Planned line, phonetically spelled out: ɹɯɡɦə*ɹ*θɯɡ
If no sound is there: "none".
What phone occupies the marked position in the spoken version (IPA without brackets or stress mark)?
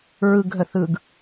none